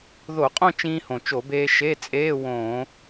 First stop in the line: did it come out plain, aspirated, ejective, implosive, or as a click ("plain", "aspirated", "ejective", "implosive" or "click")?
ejective